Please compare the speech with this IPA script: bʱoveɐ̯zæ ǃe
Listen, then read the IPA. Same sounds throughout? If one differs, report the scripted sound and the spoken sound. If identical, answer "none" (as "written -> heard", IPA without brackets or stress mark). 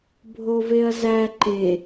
none